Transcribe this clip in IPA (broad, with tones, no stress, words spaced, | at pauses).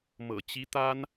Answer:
mɤ̰˨˩t͡ɕi˧˥t̪a˥n